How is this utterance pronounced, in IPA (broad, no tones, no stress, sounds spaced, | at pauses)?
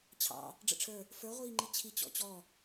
t͡ɕʰ ɑ̰ | ɖ͡ʐ ə̰ ʈ͡ʂʰ ə˞ | f ə˞ ʁʷ iː ŋ͡ǃ i t͡ɕʰ i t͡ɕ ɔ̰ t͡ɕ ɔ